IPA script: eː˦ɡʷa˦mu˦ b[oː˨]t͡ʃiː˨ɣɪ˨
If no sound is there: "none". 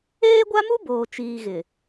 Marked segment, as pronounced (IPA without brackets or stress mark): oː˨